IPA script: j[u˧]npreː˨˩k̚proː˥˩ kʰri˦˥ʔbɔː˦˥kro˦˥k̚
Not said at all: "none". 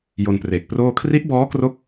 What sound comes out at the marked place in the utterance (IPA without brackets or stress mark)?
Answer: o˧